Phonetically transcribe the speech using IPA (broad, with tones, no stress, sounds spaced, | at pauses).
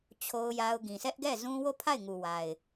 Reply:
t͡ɕʰ o˦ ʊ̯ j a˦ ʊ̯ ɡ ĩ˨ s ɛ˦ ʔ ɡ ɛ˦˨ z ũ˦ w o˦˨ pʰ a˦˨ ɪ̯ ŋ u˨ w a˨ ɪ̯